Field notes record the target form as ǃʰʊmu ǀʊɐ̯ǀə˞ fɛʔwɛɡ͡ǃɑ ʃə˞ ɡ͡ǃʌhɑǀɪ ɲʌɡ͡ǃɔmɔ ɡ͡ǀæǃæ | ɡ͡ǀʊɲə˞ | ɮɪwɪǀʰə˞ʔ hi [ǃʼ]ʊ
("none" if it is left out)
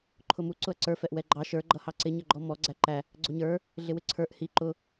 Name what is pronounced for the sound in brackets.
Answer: ǃ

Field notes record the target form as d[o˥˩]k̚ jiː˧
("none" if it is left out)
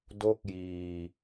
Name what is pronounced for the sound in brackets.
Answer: o˥˩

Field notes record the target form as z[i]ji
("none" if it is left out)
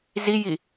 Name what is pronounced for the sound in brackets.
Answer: i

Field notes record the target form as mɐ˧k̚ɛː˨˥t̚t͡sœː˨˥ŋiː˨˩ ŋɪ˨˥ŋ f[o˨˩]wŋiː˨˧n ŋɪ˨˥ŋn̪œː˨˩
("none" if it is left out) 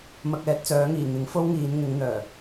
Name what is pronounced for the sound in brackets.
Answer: o˥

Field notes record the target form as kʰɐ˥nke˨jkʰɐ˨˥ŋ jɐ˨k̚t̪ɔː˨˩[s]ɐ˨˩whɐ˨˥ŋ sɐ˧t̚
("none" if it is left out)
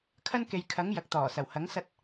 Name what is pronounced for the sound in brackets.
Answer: s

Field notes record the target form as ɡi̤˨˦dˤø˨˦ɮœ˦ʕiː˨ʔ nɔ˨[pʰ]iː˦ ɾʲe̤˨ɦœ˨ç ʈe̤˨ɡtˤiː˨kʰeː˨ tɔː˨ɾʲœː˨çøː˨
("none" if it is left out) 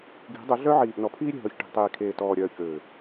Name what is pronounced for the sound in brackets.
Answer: pʰ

